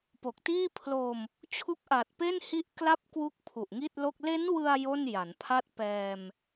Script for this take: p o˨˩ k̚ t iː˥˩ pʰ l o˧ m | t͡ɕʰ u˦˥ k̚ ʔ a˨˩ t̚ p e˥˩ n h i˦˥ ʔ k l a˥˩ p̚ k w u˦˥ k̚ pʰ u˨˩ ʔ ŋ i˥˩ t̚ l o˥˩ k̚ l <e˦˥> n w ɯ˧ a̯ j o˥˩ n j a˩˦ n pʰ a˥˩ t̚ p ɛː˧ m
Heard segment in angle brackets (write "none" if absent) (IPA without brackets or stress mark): e˦˥